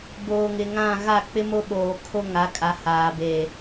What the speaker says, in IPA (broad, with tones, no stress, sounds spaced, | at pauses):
b oː˨ ŋ ɪ˨ ŋ ã˦˨ ɣ a˦˨ k͡p ɪ˦ m o˦ ɓ oː˨ kʰ o˦ ŋ a˨˦ kʼ a˨˦ h aː˨ b e˨